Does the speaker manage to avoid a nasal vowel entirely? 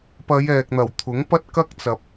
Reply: yes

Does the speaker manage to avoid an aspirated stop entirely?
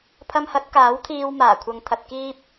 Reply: no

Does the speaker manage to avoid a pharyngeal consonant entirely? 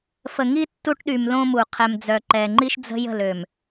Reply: yes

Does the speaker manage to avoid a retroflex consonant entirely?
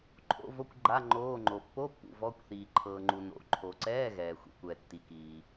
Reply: yes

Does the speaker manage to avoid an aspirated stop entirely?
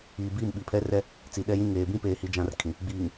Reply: no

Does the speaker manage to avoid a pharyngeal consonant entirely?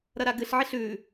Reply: no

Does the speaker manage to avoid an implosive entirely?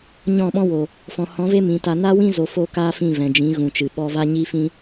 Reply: no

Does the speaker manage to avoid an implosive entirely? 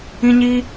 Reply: yes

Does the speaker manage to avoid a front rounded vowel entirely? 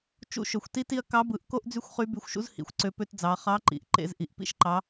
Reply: no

